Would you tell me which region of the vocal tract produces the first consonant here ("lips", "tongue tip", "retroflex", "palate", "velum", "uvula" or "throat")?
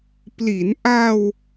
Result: lips